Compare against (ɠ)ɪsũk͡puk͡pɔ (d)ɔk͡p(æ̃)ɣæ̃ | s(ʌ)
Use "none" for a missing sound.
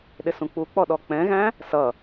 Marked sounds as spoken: ɗ, ɗ, ɛ̃, ʌ

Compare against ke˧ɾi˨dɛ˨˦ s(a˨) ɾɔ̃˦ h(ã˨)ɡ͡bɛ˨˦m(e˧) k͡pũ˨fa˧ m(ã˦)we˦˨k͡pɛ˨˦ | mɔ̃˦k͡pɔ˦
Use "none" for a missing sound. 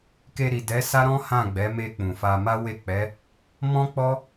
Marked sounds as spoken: a˦, ã˦˨, e˧, a˦

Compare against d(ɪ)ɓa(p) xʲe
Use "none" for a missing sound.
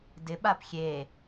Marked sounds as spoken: ɪ, p

